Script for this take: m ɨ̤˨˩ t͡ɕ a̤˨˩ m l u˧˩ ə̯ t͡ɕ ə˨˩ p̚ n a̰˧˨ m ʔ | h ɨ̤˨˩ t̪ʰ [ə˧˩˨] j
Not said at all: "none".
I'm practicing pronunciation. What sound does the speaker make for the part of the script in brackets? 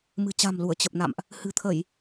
ə˧˩˨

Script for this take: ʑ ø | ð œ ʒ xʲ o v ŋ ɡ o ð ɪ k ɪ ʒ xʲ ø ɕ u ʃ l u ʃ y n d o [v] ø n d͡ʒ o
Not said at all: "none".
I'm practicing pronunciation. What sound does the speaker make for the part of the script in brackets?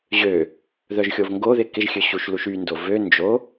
v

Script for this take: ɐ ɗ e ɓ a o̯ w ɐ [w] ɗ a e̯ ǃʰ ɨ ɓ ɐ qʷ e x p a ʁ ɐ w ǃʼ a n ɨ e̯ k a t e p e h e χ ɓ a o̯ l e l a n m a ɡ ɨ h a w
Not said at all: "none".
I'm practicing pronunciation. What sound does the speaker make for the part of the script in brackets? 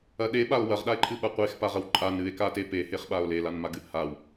ʁ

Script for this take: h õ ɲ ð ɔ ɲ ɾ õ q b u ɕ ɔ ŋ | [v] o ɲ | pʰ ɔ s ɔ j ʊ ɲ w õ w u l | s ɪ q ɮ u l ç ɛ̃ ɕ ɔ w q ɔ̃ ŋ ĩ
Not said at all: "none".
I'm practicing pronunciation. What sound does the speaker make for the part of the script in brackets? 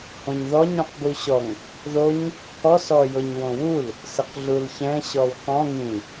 ð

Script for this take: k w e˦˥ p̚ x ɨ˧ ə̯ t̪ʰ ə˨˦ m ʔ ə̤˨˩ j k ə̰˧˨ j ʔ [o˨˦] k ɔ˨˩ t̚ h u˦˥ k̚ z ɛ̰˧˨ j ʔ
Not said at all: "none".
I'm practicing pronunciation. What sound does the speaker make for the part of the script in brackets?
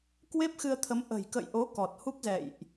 o˨˦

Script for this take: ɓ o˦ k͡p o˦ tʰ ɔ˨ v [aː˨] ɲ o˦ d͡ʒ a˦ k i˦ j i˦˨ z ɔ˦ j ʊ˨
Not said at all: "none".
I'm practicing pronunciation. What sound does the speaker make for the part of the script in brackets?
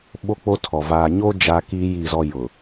aː˨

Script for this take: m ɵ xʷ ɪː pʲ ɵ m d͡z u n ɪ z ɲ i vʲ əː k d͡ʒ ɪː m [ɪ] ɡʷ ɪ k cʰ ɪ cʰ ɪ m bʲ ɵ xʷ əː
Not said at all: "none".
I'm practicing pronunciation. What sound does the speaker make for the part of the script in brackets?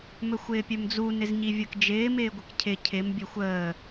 ɪː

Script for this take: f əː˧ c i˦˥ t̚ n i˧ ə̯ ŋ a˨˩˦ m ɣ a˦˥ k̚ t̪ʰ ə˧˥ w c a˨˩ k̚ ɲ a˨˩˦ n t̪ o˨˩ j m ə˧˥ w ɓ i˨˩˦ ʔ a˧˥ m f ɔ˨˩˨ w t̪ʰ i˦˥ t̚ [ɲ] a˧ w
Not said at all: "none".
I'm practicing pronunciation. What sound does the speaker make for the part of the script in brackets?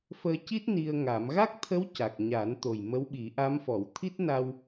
n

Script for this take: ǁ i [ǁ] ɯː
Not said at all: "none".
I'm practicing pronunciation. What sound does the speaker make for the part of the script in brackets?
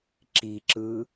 ǁ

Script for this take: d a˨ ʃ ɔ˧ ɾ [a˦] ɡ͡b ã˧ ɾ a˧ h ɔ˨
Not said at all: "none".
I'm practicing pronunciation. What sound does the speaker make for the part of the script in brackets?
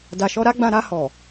a˦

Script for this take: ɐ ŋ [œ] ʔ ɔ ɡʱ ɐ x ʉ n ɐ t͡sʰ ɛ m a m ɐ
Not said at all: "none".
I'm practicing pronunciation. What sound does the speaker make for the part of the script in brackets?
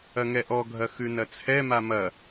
ɛ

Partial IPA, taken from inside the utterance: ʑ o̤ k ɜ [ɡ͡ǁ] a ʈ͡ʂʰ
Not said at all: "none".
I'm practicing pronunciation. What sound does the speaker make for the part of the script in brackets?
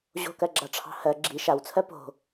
ɡ͡ǁ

